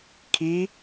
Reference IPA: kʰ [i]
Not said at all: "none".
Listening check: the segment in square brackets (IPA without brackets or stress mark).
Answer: i